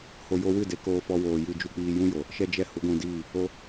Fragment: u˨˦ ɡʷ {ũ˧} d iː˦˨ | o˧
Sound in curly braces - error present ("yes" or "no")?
no